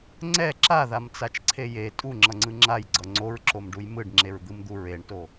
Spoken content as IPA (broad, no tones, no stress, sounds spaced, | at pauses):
ŋ͡ǀ ɛ ǁ a ð a m t͡s a t͡ʃ ǀʰ e j e tʼ u ŋ͡ǁ ʌ ŋ͡ǀ ɯ ŋ͡ǁ a j ɡ͡ǀ ʌ ŋ͡ǀ o ɹ ǁ o m ɖ u j m ɯ ɖ ŋ͡ǁ e ɹ d̪ ɯ m d̪ u ɹ e ɳ t o